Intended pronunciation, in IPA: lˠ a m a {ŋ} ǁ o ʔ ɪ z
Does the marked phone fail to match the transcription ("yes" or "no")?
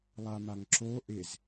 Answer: no